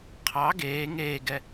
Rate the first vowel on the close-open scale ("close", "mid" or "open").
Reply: open